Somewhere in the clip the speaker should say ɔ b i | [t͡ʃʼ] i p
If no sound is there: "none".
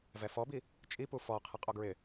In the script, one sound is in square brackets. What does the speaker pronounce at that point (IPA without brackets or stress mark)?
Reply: t͡ʃʼ